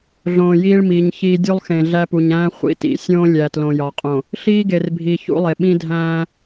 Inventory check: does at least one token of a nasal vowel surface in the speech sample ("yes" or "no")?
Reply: yes